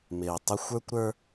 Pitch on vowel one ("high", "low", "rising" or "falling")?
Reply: low